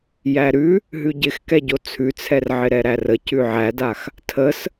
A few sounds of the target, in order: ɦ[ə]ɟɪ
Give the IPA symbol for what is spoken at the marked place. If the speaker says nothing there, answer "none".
ʉ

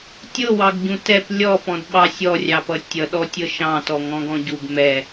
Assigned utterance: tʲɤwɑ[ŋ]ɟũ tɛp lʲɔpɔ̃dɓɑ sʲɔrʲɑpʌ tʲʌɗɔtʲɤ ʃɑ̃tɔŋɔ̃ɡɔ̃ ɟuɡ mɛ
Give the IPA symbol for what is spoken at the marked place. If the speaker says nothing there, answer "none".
ɡ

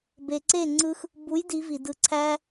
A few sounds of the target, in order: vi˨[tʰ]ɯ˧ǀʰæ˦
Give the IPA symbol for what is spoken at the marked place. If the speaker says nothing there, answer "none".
d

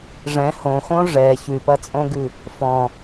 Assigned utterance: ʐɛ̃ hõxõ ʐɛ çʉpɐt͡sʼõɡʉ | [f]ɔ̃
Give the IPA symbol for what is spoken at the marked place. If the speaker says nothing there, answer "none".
f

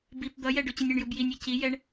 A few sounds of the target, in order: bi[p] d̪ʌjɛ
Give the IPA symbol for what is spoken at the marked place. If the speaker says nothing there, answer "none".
p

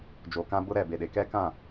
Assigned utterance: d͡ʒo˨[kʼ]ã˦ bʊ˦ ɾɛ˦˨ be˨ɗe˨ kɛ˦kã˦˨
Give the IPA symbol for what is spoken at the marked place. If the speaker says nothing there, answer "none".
k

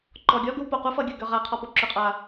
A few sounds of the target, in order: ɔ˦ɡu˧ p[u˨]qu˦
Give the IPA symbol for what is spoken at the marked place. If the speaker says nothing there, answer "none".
o˨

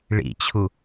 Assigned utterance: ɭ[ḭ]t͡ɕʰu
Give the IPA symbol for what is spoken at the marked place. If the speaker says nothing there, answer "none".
ḭ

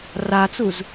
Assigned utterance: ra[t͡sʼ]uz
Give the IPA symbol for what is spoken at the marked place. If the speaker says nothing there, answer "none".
t͡s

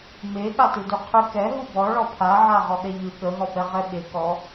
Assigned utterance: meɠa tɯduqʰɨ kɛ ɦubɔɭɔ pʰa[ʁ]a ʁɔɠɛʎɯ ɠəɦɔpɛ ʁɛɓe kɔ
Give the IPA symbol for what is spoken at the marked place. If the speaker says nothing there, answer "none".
ʕ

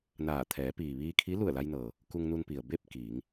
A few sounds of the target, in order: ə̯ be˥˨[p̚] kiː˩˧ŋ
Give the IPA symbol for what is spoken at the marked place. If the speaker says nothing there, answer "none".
p̚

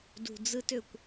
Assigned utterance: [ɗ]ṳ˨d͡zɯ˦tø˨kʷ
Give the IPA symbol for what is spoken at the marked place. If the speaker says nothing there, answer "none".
d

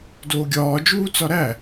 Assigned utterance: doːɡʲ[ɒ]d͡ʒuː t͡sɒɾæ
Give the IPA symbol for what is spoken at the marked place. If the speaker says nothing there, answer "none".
ɒː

